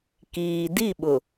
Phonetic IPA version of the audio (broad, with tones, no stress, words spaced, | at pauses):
kiː˨ di˦˨ɓʊ˨